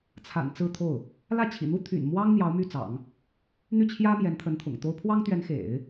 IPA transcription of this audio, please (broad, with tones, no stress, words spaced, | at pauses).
t͡sʰa̰˨˩n t͡sɹ̩˥˧t̪ʰo˥˩ʊ̯ | lä˥˩t͡ɕʰḭ˨˩n̪u˥ t̪ʰy̰˨˩nmwɑ˥ŋ n̪jɑ˧˥ʊ̯my˥˩t͡sɑ̰˨˩˦ŋ | n̪y˥˩t͡ɕʰjä˥ mjɛ˧˥nt̪ʰə˧˥nt̪ʰʊ̰˨˩ŋt̪o˥ʊ̯ pʰwɑ˥ŋt̪ɥɛ˧˥nxḛ˨˩˦ɪ̯